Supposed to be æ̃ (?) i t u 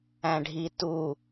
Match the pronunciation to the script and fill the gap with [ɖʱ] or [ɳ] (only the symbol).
ɖʱ